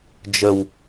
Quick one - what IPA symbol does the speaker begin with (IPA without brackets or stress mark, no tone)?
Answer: d͡ʒ